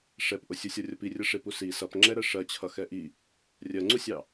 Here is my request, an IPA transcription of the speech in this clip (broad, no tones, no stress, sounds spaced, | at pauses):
ʂ ɛ p ʔ ʊ sʲ u sʲ ɔ rʲ ʌ p i rʲ ʌ ʂ ɪ p u s i s ʌ p ŋ͡ǁ ɛ ɾ ɜ ʂ ɜ t͡ɕʰ ʌ x ɛ ʔ i | rʲ ɜ ŋ͡ǀ u sʲ ɑ